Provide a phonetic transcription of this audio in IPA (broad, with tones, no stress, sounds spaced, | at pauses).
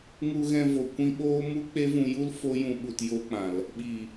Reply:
ŋ u˧ ɣ ɛ̃˧ v o˨ kʷ ĩ˧ ɓ oː˦ m u˦ k͡p e˦ v ũ˧ j u˦ l f o˦ j ũ˨ ɓ u˨ t j o˧ k͡p ã˨ l | ɓ i˨